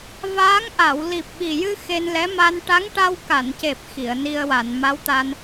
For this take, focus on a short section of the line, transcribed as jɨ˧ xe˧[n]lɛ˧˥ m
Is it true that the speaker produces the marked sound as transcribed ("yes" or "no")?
yes